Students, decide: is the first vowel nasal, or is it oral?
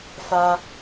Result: oral